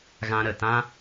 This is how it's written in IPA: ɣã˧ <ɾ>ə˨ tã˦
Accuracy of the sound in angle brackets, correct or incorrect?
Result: correct